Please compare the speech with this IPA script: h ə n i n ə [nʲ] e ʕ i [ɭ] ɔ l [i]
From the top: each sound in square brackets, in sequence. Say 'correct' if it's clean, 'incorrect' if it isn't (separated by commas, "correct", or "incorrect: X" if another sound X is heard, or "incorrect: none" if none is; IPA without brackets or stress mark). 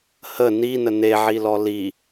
incorrect: n, incorrect: l, correct